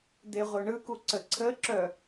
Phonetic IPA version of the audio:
d̪ e ʁʷ œ ɳ ɯ k u ǀ ə ǀʰ ə ǁ œ

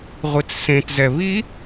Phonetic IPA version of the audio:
ʁʷ i t͡s s ẽ t z ɛ β i

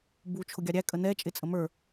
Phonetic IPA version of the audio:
b u t͡ʃʰ ʊ ɡʲ ɑ ɾʲ æ kʼ ə n ɛ t͡ʃʼ ɪ t͡sʼ ə m ə˞

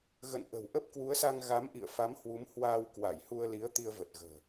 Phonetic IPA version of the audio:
ɣ ə̰˧˨ n ʔ ə̤˨˩ w ʔ ə˦˥ p̚ k w u˨˦ ə̯ s a˧ ŋ ɣ a˨˦ m ʔ ḭ˧˨ ə̯ f a˨˦ m h w u˨˦ m h w aː˧ w k w a˧˩ j h u˧ ə̯ l i˨˦ ə̯ t̪ i˧ ə̯ v ə˨˩ t̚ ɣ ə̤ː˨˩

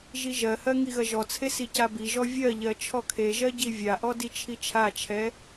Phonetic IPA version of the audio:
ʒ i ʒ ɜ h ɜ ŋ i ɣ ɐ ʒ ɔ t͡sʰ e s i c a b i ʒ ɔ vʲ ɜ ʎ ɜ t͡ʃʰ ɔ kʰ e ʒ ɜ ɟ i vʲ a ʔ ɔ d i t͡ʃʰ i t͡ʃʰ a t͡ʃʰ ɛ

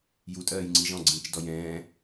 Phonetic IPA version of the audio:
j u tʼ ɜː j ŋ͡ǀ i ʒ ɔ̃ ɡ͡ǀ ĩ t͡ʃ d ɔ j ɛ̃ː

